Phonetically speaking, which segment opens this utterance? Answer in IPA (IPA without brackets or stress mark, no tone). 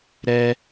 ɾ